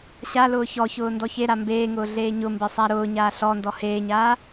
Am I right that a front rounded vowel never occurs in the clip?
yes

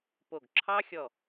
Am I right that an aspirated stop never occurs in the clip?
no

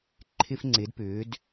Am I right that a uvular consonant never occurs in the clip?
yes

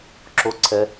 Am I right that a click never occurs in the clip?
no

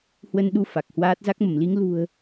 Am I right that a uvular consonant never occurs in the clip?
yes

